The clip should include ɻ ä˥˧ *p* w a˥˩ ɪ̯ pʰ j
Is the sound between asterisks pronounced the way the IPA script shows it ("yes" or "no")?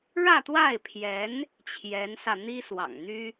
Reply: no